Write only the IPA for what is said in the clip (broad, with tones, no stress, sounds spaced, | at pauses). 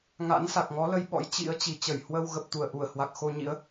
ŋ a̰˧˥ n s a˨˩ k̚ ŋ ɔ˨˦ l ə˧ j ɓ ɔ̰˧˥ j t͡ɕ ḭ˧˥ ə̯ t͡ɕ i˨˩ t͡ɕ ə˧˩ j h w ə˧ w ɣ ə˨˩ p̚ t̪ u˧˩ ə̯ ʔ u˧˩ ə̯ h w a˨˩ k̚ x o˧ ɲ ḭ˧˥ ə̯